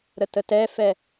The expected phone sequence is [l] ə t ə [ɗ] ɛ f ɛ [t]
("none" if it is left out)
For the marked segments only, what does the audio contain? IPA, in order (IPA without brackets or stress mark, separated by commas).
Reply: ɾ, t, none